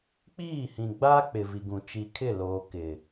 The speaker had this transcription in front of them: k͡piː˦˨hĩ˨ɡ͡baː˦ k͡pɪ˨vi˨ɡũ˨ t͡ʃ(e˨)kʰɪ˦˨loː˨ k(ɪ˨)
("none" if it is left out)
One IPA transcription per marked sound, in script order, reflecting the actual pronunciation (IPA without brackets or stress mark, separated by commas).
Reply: i˨, ɪ˨